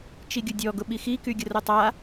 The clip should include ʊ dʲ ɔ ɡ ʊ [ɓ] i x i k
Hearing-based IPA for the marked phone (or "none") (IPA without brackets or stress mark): ɓ